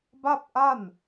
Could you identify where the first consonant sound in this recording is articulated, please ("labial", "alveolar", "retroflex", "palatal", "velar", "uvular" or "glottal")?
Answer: labial